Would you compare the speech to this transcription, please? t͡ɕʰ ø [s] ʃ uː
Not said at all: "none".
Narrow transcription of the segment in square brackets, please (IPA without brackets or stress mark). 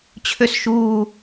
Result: s